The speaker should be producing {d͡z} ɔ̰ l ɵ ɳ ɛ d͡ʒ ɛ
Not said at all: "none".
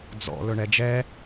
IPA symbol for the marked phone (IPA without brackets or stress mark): d͡z